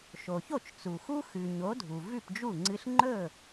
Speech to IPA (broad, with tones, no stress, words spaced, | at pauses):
ʃo˩ço˥˩t͡ʃ t͡su˩xu˥ xʉ˩ɲo˩˥ dʱu˩vʉ˥˩pd͡ʒu˥˩ŋ͡ǀɨ˧ɬ ŋ͡ǃɵ˥˩